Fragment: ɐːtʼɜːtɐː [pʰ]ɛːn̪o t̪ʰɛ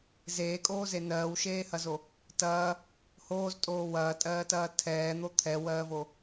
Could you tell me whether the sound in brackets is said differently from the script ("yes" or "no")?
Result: yes